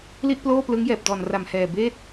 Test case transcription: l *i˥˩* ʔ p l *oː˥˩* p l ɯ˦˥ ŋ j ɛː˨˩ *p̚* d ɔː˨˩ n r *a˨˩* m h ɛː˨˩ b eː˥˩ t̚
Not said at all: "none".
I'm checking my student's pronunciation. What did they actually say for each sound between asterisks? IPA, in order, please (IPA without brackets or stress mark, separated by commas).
i˥˩, oː˥˩, p̚, a˨˩